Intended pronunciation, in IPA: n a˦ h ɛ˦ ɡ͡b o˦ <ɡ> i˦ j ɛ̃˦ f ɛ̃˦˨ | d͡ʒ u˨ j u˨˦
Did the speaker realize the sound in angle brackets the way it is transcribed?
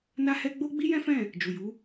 no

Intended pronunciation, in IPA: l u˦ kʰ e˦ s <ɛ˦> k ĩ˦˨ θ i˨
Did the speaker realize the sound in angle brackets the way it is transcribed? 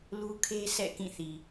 no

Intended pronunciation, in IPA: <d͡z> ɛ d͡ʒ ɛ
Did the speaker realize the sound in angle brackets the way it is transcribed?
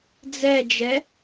yes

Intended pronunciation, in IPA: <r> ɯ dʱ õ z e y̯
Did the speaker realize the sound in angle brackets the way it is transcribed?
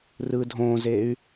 yes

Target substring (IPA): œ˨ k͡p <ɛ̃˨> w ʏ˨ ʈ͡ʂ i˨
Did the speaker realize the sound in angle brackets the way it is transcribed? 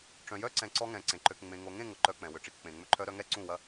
yes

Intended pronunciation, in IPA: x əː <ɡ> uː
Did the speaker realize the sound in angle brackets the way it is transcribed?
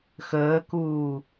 no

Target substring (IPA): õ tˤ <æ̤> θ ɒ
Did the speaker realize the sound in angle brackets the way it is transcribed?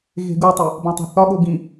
yes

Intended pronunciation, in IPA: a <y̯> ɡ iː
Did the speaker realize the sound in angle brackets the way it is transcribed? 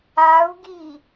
no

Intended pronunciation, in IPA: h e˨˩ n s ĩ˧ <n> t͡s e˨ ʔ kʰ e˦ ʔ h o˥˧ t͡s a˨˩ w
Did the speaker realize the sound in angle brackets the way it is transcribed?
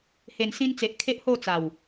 yes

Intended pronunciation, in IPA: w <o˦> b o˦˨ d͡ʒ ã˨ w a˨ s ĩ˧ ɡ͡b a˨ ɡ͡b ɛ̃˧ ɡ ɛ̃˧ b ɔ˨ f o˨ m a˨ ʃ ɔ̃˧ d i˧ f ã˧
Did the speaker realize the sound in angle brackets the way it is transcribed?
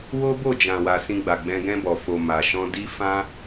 yes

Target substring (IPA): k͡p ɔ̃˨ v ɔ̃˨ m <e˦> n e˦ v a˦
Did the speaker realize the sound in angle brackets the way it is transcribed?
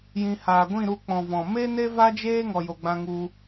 yes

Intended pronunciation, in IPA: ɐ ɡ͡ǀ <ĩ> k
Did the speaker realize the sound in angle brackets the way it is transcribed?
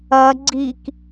no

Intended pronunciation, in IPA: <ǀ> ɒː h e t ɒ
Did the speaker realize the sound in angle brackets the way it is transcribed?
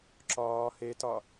no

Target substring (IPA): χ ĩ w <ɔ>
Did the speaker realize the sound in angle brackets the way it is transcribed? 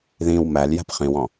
no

